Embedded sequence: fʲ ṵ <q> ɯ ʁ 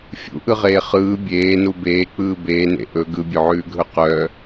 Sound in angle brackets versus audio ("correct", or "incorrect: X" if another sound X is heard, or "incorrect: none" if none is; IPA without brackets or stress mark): incorrect: ʔ